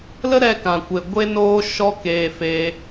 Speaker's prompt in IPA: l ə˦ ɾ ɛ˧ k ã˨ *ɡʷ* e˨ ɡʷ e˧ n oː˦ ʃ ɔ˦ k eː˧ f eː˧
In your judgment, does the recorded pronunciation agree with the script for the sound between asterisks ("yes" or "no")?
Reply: no